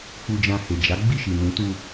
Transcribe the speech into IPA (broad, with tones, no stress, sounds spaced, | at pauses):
k͡p u˧ d͡ʒ ã˧ h e˨ d͡ʒ a˨˦ ɡ͡b i˦˨ ʃ i˨ n ũ˨˦ t u˧